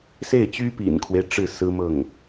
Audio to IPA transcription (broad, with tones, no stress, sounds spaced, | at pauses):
s e˥˩ ɪ̯ t͡ɕ y˥ p ḭ˨˩ n kʰ w e˦ ɪ̯ ʈ͡ʂ ɻ̩˥˩ s ɹ̩˥ m ɤ˥˩ ŋ